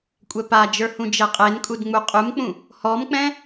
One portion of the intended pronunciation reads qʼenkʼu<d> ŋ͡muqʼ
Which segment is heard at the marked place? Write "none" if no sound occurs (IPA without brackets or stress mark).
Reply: d